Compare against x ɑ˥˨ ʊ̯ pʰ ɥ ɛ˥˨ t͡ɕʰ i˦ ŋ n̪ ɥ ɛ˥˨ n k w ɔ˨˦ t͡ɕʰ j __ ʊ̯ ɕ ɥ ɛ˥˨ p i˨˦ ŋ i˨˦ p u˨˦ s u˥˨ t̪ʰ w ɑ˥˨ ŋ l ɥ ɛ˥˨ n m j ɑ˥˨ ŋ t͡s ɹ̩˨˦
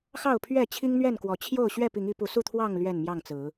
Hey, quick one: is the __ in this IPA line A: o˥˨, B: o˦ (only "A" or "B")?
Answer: A